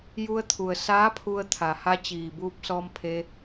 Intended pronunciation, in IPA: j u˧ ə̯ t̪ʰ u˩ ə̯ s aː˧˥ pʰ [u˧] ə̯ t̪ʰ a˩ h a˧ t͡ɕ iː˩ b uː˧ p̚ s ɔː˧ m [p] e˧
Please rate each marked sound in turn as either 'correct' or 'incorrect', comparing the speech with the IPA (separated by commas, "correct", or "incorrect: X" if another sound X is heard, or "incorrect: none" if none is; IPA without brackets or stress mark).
correct, incorrect: pʰ